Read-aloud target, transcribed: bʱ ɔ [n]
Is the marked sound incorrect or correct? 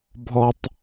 incorrect